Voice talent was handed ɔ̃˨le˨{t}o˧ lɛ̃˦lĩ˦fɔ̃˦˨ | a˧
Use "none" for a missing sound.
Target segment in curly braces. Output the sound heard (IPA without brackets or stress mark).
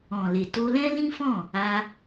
t